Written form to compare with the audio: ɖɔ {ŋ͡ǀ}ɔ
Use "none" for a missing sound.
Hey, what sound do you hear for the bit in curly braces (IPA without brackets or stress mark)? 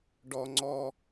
ŋ͡ǀ